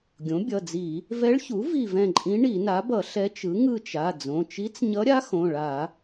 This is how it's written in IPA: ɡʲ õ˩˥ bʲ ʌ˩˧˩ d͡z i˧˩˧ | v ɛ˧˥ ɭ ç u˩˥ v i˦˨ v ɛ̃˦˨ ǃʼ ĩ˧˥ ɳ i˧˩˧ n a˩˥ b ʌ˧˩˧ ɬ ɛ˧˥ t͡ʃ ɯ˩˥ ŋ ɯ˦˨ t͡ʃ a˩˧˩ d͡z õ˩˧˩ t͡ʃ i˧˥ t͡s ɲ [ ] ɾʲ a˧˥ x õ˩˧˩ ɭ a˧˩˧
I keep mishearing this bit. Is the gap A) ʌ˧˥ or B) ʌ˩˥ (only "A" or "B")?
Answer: A